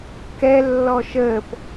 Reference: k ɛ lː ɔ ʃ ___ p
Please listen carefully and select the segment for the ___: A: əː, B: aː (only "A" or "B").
A